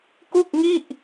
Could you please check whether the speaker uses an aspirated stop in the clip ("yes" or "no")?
no